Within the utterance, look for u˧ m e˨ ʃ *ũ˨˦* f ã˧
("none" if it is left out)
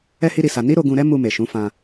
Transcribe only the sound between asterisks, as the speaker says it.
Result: ũ˨˦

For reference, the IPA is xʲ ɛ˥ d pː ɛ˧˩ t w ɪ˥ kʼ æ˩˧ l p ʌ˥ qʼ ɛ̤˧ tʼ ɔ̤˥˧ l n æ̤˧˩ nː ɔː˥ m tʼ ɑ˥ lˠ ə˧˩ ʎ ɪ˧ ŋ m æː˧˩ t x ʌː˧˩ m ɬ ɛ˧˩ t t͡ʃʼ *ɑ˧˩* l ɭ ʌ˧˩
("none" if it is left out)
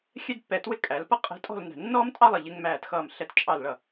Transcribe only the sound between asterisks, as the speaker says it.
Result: ɑ˧˩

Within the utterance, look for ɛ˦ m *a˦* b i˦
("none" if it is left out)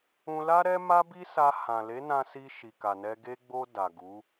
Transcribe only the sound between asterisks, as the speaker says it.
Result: a˦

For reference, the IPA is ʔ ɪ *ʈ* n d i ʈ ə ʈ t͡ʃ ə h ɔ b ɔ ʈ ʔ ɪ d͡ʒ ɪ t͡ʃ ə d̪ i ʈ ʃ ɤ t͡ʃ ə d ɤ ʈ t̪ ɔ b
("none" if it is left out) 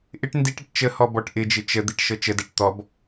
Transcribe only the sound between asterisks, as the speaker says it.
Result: ʈ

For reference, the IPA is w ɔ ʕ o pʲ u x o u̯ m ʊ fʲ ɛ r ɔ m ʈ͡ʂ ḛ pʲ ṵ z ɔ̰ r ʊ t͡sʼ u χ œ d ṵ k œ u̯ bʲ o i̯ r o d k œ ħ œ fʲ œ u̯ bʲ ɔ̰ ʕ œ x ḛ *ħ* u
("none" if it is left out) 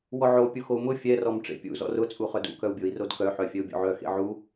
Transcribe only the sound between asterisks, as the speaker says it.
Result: ʕ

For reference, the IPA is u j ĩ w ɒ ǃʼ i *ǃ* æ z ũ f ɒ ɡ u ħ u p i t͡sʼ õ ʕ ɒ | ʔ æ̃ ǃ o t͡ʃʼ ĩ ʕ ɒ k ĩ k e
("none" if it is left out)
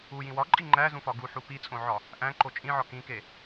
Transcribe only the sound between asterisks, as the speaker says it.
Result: ŋ͡ǃ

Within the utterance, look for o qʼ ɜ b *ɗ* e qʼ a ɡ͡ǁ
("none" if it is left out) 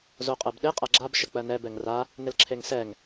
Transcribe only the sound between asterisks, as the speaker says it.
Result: ɗ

